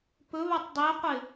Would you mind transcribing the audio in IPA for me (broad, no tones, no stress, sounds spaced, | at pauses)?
p ɵ β a tˤ dˤ e qʷ ɪ